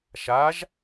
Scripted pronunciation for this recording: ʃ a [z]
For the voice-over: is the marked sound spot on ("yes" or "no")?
no